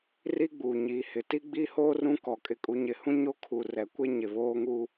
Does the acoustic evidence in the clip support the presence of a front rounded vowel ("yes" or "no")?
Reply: no